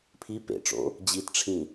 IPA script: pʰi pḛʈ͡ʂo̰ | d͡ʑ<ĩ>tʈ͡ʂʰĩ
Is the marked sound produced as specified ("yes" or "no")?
no